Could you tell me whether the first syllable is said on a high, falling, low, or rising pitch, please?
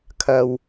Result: low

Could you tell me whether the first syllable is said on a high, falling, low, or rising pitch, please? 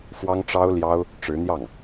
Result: high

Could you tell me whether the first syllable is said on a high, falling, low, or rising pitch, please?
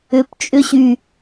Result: low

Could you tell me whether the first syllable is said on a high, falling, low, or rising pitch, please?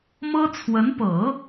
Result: high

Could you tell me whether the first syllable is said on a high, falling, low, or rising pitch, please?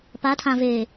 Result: rising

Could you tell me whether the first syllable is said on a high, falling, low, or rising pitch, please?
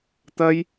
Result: high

